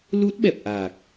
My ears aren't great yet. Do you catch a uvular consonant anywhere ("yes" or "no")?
no